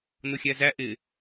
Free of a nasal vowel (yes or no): yes